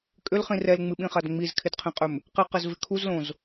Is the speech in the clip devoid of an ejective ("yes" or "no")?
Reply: no